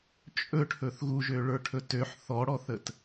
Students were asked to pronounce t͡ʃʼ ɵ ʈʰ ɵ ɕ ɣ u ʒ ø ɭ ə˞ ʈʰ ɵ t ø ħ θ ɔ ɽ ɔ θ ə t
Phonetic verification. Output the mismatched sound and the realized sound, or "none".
ɕ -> θ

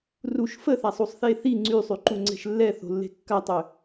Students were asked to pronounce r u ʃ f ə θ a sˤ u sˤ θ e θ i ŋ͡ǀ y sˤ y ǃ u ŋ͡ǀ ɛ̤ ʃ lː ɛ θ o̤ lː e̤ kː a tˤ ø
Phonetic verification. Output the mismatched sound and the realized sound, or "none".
none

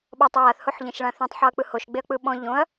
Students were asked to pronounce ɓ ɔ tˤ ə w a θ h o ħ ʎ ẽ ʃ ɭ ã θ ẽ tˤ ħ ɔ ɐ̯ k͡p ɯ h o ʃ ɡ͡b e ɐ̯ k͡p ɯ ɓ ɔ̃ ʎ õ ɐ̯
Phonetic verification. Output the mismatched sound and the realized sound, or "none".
none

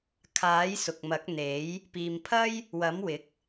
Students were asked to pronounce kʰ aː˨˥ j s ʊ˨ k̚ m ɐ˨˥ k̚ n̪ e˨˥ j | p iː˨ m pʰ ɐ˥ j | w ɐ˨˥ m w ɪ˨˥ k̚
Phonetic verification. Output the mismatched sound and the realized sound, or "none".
none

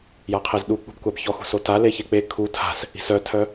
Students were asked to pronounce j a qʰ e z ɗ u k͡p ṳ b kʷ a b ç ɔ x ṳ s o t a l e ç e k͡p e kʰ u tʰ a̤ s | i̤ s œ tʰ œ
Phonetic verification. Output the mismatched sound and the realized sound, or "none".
none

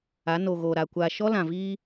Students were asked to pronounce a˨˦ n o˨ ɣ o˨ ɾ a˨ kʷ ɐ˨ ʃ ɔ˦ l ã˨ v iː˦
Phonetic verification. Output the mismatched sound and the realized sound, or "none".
ɐ˨ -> a˨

